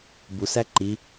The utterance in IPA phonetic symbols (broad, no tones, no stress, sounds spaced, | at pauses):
b u s æ ǃ i